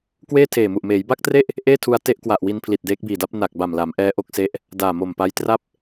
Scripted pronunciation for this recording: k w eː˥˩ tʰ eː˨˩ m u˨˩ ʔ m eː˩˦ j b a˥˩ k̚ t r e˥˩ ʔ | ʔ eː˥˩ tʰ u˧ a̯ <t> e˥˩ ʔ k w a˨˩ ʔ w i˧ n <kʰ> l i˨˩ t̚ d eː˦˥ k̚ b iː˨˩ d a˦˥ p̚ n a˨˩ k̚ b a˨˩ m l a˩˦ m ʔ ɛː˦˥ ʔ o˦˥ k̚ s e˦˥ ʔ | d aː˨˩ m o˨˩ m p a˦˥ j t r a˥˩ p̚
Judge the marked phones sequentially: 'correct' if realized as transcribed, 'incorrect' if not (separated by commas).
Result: correct, incorrect